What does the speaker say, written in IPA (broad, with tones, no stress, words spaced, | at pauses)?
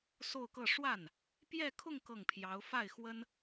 so˥˧ʊ̯kɤ˥˧ ʂwa˥˩n | pjɛ˥˧kʰʊ˥˧ŋ kɤ˥˩ŋpʰjɑ˧˥ʊ̯ fa˥˩ɪ̯xwə˥n